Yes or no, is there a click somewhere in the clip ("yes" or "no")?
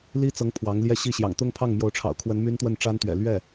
no